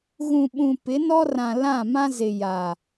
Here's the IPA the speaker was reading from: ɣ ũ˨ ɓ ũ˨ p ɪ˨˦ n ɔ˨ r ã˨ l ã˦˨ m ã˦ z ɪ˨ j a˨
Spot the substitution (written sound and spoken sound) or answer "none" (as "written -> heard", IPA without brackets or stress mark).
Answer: ɔ˨ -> ɔ˦